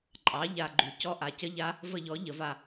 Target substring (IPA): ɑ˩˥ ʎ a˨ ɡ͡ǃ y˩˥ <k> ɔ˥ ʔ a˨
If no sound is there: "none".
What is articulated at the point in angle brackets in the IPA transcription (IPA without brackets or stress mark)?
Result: c